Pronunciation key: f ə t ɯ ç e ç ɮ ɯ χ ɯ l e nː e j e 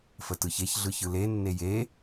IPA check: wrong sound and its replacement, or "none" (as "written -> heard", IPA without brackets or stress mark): χ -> ç